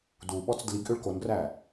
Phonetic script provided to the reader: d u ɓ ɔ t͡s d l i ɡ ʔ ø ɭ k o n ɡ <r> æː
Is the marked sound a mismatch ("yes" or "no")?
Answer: no